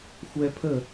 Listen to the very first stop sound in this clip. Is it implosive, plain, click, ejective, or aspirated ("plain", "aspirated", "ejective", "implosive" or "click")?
aspirated